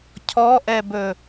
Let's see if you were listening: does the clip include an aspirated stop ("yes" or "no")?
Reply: yes